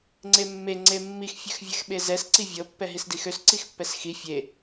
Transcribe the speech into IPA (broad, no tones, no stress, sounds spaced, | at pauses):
ŋ͡ǀ e mː e ŋ͡ǀ e mː i x fʲ ø x vʲ ɛ x ɓ e z ɛ s ǀ i vʲ ɤ pː ɛ ɦ i s d i x ø s ǀ i x pː ɛ s x i fʲ e